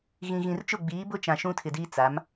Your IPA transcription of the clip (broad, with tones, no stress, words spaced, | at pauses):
ɣĩ˨ɣĩ˨rt͡ʃʊ˦˨ ɡ͡biː˨˦bʊ˦t͡ʃã˨ ʃũ˦tʰɪ˨diː˦ t͡sa˨˦m